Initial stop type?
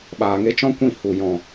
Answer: implosive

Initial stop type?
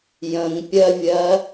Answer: plain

